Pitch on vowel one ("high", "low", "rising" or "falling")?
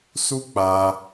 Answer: high